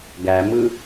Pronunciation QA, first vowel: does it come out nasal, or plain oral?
oral